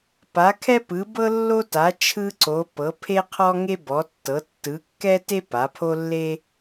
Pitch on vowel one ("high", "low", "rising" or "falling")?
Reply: rising